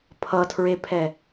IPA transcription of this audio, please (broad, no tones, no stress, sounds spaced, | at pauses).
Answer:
pʰ ʌ tʰ ɹ e pʰ ɛ